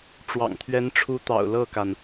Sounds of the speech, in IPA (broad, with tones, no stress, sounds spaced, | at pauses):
ʈ͡ʂ w ɑ̰˨˩ ŋ t̪ʰ ɥ ɛ˧˥ n ʈ͡ʂʰ u˧˥ t̪ ɑ̰˨˩ ʊ̯ l ɤ˥˩ k a˩ n